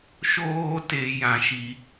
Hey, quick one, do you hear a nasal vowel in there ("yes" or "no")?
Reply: yes